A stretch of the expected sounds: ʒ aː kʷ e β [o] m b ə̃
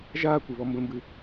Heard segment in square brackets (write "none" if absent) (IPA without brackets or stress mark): ɔ